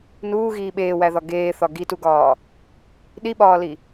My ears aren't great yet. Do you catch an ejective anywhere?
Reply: no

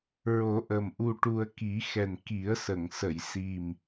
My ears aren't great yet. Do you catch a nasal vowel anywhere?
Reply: no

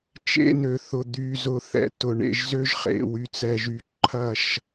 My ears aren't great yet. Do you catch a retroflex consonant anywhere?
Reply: yes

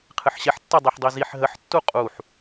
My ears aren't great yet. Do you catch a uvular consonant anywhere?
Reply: yes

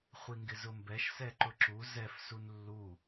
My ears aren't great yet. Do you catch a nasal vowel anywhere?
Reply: no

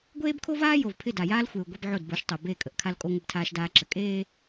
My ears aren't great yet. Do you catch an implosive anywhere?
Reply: no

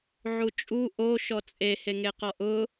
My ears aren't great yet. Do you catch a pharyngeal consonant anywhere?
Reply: yes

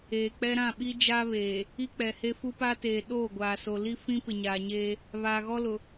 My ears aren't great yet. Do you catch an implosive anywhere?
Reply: yes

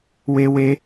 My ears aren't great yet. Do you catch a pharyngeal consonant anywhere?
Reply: no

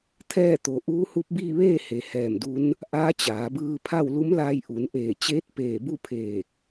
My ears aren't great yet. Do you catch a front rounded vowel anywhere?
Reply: no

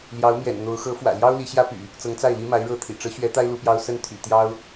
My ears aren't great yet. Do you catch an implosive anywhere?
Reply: no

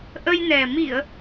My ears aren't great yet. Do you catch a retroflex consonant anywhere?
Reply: no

